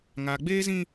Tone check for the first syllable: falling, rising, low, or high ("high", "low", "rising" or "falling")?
low